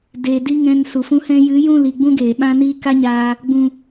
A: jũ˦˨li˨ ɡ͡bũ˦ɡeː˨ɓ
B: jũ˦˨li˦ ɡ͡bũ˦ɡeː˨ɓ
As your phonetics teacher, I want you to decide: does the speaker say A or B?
A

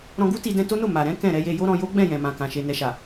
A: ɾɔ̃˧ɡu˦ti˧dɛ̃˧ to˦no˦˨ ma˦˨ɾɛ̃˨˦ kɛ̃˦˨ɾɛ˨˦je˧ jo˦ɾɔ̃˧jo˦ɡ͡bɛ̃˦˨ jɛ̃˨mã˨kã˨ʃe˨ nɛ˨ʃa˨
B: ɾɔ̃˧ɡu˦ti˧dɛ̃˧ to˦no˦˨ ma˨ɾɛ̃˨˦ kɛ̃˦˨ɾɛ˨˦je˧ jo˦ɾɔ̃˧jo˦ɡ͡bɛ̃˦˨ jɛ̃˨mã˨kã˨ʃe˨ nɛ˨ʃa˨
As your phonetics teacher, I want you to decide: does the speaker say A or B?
B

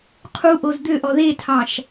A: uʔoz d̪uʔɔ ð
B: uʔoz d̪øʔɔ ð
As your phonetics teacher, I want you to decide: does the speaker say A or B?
B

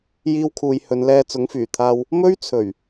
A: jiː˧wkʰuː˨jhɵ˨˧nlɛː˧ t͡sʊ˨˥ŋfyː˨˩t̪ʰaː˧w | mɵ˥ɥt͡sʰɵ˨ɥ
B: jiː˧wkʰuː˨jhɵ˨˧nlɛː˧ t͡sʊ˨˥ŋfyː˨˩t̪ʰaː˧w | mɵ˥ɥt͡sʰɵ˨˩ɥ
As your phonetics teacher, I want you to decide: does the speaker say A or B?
B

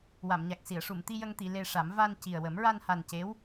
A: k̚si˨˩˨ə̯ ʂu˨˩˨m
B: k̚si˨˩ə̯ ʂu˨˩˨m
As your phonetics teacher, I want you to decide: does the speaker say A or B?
A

